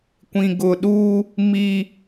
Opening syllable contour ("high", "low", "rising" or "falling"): low